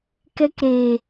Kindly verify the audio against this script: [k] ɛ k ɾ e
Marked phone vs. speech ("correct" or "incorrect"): correct